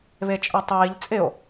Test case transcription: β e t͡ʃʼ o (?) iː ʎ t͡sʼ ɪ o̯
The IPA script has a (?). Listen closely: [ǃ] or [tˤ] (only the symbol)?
tˤ